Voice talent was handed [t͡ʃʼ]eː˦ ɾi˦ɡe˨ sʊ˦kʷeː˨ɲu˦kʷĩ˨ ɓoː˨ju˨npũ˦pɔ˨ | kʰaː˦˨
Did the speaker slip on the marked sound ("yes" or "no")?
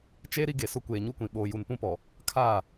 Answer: yes